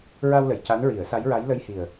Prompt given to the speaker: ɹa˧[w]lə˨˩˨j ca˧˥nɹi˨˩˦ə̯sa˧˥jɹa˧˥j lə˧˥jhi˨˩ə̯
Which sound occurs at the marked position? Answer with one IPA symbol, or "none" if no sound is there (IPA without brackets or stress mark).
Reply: w